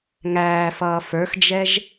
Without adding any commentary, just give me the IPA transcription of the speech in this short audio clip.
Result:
ŋ æː f ʌː f ə˞ x d͡ʒ ɛ ʒ

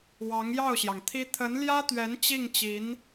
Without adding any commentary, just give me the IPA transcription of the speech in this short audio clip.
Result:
w ɑ˧˥ ŋ j ɑ˥˩ ʊ̯ ɕ j ɑ˩ ŋ t̪ʰ i˥ t̪ʰ ə˧˥ n l j ä˥ t̪ ɥ ɛ˧˥ n t͡ɕ i˥˩ ŋ t͡ɕ i˧˥ n

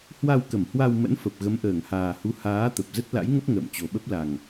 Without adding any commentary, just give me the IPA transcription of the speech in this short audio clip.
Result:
h w a˧ w k ə˧˩ m h w a˧ w m ə̰˧˥ n f ə˨˩ p̚ ɣ ə˨˦ m ʔ əː˧˩ ŋ h aː˨˩ h u˨˦ h aː˨˦ t̪ ə˨˩ p̚ z ə˦˥ t̚ l a̰˧˥ j ŋ ə˦˥ p̚ ŋ ə̰ː˧˨ m t͡ɕ o˨˩ ɓ ə˦˥ p̚ l a˨˩ ŋ

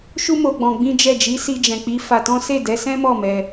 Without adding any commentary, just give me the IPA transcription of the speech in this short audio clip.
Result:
ʃ u˦ m o˧ ɡ͡b ɔ̃˧ ɡ͡b ĩ˦ d͡ʒ ɛ˦˨ d͡ʒ i˨˦ s i˧ d͡ʒ ɛ̃˨ k͡p i˨˦ f a˧ t ɔ̃˦ s e˦˨ d ɛ˨˦ s ɛ̃˦ m ɔ˦˨ m ɛ˧

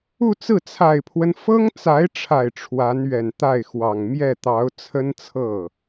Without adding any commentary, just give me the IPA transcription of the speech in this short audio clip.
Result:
u˥˧ t͡s ɹ̩˥˩ t͡sʰ a˨˩ ɪ̯ pʰ w ə˦ n f ɤ˥ ŋ t͡s a˧˥ ɪ̯ ʈ͡ʂʰ a˨˩ ɪ̯ ʈ͡ʂʰ w a˧˥ n ɥ ɛ˨˩ n t̪ a˥˩ ɪ̯ x w ɑ˨˩ ŋ m j ɛ˥˩ t̪ ɑ˧˥ ʊ̯ t͡sʰ ə˥ n t͡sʰ ɤ˥˩

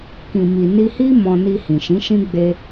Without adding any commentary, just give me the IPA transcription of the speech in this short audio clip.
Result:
k ĩ˨ m i˨ n i˧ h i˦ m ɔ̃˧ n i˧ h ĩ˨ ʃ ĩ˨˦ ʃ ĩ˦ ɡ͡b e˦

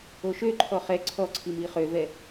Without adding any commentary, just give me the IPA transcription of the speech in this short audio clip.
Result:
o ʃ ø ǃʰ ɔ χ ɛ ǀʰ ɔ ǀʰ i m i χ ø v ɛ

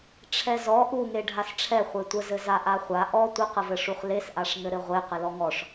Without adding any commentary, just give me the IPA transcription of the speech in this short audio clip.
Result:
ʈ͡ʂʰ ɛ z ɔ ʔ u ŋ e ɖʱ a s ʈ͡ʂʰ ɛ χʷ e tʷ ə z ɘ z a ʔ a χʷ a ʔ ɔ tʷ ə q ə v ɘ ʂ u χ l e s ʔ a ʂ ŋ ɘ ɾ ɘ ʁʷ e q ɘ l ɔ ŋ ɔ ʂ

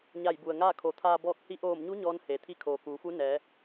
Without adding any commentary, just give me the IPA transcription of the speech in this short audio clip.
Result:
ɲ a˧˩ j b u˩ ə̯ ŋ aː˥˨ kʰ o˩˧ t̪ʰ aː˧ b ɔː˧ k̚ h i˧˥ ʔ oː˧˩ m ɲ u˧˥ ɲ ɔː˧˥ n h eː˩ t̪ʰ i˧˥ kʰ oː˩ k uː˩˧ f u˧˥ n ɛː˩˧

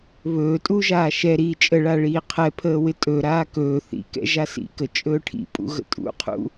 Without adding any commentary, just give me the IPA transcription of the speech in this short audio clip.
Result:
β ɵː tʼ u ʒ aː ʃ ɛ ɾ iː t͡ʃʼ ə ɭ a ɭ iː qʰ ɛ pʰ əː w ɪ tʼ ɵ ɾ aː k ɵː θ ḭ k ɛ̰ ʒ a s ḭ k ə t͡ʃʼ ɵː ʈʰ ḭ pʼ ṵ ɣ ə̰ tʼ ṵ qʰ ṵ

